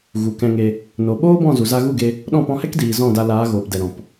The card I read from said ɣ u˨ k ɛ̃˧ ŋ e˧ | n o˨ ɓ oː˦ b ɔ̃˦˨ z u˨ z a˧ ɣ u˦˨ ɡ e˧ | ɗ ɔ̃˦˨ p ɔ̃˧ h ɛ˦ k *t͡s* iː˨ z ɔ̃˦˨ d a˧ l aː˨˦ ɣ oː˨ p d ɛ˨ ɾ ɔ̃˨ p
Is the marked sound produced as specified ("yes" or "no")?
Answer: no